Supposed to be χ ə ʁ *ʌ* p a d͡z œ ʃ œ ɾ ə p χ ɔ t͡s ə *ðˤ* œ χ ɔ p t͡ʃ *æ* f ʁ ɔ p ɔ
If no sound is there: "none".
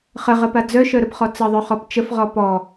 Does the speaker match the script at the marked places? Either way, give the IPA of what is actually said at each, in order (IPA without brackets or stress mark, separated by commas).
ə, ðˤ, ə